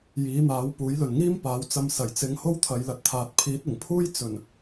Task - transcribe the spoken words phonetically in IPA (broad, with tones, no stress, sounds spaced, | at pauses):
j iː˨˥ n̪ aː˨˥ w p uː˨˥ j l ɵ˨ n ŋ iː˥ m p aː˨˥ w t͡s ɐ˧ m s ɐ˨˩ j t͡s ɪ˨˧ ŋ h o˥ w t̪ʰ ɐ˨˧ j l ɐ˧ t̚ t̪ʰ aː˨ t̚ pʰ iː˨˥ t̚ ɪ˨˩ ŋ pʰ uː˥ j t͡s ɵ˨˩ n